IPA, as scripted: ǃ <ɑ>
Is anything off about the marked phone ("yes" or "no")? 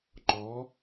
yes